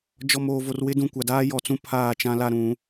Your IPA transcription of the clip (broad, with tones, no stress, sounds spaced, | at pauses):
d͡ʒ ɔ˨ m oː˨ v o˨ r w ɪ˦ d ũ˨ kʷ a˨ d aː˦ j ɔ˨ t͡s ũ˦ pʰ aː˦˨ t͡ʃ ã˦ l a˦ ɾ ũ˨˦